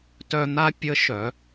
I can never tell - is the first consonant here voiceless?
yes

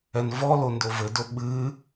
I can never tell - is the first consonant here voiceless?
no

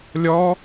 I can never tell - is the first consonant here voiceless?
no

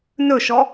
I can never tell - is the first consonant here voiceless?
no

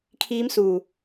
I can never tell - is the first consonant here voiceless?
yes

